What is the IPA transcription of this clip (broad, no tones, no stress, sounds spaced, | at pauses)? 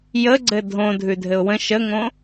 j ə ɡ͡ǀ ɘ dʱ õ dʱ ʉ dʱ ɘ ʊ̯ w ə̃ ʃ ə ŋ õ